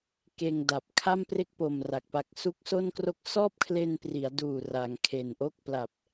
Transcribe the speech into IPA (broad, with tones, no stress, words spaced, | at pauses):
keː˧ŋda˨˩p̚ kʰa˥˩mpre˥˩k̚po˨˩m ra˨˩k̚pa˦˥k̚ su˦˥k̚so˥˩nkro˥˩k̚ sɔː˥˩p̚kʰle˧npri˩˦a̯duː˨˩ ra˩˦ŋkʰe˨˩nʔo˥˩k̚ pla˨˩p̚